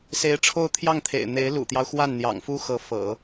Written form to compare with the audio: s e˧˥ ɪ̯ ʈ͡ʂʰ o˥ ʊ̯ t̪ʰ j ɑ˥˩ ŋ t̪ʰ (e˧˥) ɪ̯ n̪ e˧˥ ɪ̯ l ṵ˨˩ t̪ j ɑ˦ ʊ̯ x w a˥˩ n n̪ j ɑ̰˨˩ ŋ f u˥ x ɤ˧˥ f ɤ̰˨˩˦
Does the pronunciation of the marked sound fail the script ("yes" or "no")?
yes